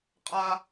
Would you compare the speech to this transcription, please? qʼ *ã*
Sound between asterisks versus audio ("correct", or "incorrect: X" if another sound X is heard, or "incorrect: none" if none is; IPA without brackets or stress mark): incorrect: a